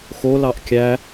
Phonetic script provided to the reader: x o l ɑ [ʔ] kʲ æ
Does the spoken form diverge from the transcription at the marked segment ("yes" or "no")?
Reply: no